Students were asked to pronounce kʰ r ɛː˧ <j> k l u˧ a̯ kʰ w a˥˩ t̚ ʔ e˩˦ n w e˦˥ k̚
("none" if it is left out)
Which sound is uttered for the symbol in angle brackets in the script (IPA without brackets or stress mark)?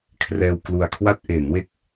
w